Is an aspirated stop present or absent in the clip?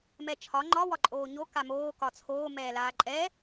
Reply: present